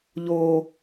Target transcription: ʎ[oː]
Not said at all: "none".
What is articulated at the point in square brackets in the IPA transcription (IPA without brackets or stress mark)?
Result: oː